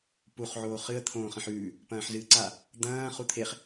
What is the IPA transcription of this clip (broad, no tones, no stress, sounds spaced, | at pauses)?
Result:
p u χ ʕ oː χ ɨ ə̯ t̪ʰ õː χ ɐ̃ ħ ʉː | p ɐ̃ː ħ z ɨː ǀ a | d̪ ɐ̃ː χ u t̪ʰ e χ